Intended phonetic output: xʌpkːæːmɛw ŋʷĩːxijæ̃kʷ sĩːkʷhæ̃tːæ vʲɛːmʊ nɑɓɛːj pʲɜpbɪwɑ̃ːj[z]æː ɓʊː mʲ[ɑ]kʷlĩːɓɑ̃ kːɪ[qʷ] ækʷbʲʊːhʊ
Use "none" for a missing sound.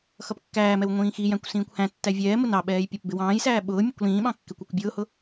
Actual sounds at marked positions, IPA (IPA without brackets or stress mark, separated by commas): s, ʌ, kʷ